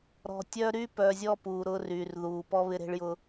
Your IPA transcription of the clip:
ɾ ɔ̤˨ tʲ œ˦ ɾ y˦ p œ˨ zʲ ɔ˦ p uː˨ ɾ ʊ˦ r y˨ r ð uː˨ p ɔ˦ β ɪ˦ ɾ e̤˦ ɭ j ʊ˦

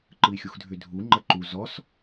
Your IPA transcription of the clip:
ǃ ɯ i̯ xʲ u x dʱ ʏ dʱ u ŋ͡ǃ ə ǃ u z ɔ s

